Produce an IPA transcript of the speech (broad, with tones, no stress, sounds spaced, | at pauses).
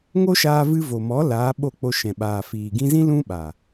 ŋ o˦ ʃ aː˧ v ɨ˧ v o˨ m ɔ˨˦ l aː˨˦ ɓ o˦˨ k͡p o˧ ʃ ɛ̃˨ ɓ aː˨ f iː˨ ɡ ĩ˧ z ĩ˦ l ũ˦ ɓ a˨